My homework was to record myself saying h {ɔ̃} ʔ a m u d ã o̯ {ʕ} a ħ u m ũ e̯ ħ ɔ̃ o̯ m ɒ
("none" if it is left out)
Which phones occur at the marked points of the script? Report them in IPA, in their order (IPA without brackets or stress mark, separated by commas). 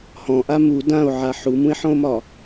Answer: ɔ̃, ʕ